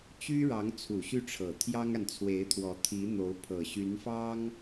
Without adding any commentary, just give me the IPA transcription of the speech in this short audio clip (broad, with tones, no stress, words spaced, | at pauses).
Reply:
t͡ɕy˥ɻɑ˧˥ŋ t͡sʰu˨˩ɕy˥˩ʈ͡ʂʰɤ˨˩ t̪ʰjɑ˥ŋa˨nt͡sʰwe˧˥ɪ̯t̪ʰwɔ˧˥ t̪ʰi˧˥n̪o˧˥ʊ̯ pʰɤ˨˩ɕy˧˥nfɑ˥ŋ